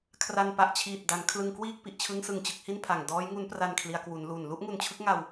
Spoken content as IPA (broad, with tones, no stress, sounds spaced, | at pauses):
kʰ r a˧ n p a˨˩ ʔ t͡ɕʰ iː˨˩ t̚ d a˩˦ n kʰ l ɯ˧ ŋ k w iː˥˩ k̚ p i˨˩ ʔ t͡ɕʰ ɯ˦˥ ŋ s ɯ˨˩ ŋ t͡ɕ ɯ˥˩ k̚ h i˥˩ n pʰ a˨˩ ŋ d ɔː˦˥ j ŋ u˦˥ n p r a˧ n kʰ l i˩˦ a̯ k w u˩˦ n l u˨˩ n l u˥˩ ʔ ŋ u˧ n t͡ɕʰ ɯ˦˥ k̚ ŋ a˧ w